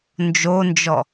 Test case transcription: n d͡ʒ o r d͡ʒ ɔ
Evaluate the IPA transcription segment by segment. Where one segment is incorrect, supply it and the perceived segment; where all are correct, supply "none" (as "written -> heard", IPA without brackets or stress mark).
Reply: r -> n